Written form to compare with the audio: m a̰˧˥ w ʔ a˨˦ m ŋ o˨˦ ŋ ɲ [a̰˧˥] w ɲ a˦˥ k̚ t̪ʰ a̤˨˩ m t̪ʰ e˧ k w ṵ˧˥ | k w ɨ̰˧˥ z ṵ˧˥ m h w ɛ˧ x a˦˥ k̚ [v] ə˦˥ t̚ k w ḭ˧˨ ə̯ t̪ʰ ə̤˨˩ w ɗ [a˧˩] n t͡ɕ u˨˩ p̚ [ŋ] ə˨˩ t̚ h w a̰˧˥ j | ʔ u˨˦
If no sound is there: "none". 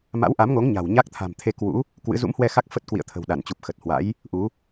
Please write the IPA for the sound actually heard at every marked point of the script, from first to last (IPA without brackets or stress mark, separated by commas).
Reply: a̤˨˩, f, a˧˩, x